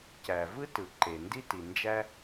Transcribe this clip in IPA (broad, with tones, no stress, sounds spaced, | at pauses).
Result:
c æ˩ v ɯ˥ t ɯ˩ ǃ e˩ n d i˥ t i˩ n d͡ʒ æ˥